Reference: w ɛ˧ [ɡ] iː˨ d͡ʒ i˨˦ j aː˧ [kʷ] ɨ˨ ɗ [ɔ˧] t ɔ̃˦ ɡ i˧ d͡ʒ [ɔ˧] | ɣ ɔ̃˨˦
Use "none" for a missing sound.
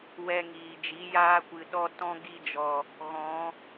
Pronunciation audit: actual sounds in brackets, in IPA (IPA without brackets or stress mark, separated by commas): ŋ, kʷ, ɔ˧, ɔ˨